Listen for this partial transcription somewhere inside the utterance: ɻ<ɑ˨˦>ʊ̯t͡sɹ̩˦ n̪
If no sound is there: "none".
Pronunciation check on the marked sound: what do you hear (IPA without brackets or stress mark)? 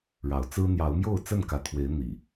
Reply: ɑ˨˦